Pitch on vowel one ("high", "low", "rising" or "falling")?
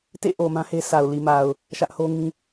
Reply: falling